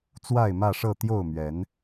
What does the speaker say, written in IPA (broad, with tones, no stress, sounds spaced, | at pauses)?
t͡s w a˥˨ ɪ̯ m ä˥˨ ʂ ɤ˥˨ t̪ j o˥˨ ʊ̯ m ɥ ɛ˨˦ n